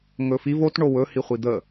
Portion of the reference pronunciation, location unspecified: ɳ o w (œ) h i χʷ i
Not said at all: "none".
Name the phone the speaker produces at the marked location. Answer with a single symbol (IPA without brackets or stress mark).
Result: ɵ